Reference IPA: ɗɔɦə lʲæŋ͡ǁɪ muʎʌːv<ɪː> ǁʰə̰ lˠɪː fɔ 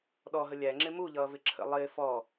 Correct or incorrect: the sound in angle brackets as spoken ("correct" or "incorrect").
incorrect